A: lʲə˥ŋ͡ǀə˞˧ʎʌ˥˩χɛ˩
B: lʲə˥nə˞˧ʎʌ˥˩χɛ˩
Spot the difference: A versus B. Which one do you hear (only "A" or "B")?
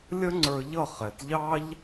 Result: A